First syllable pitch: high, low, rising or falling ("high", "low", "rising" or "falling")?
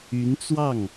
rising